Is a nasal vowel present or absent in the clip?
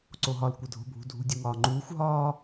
absent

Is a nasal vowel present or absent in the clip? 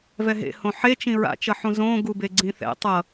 present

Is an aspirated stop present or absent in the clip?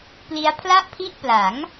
present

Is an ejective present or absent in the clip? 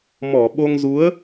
absent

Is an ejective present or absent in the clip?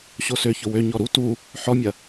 absent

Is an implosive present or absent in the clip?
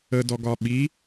present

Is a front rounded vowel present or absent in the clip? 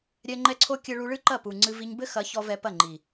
absent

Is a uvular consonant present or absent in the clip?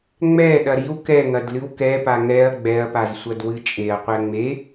present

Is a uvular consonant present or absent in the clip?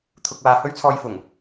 absent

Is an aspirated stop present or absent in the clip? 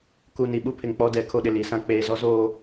present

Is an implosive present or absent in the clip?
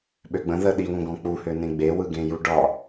present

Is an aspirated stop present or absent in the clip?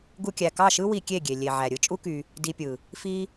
absent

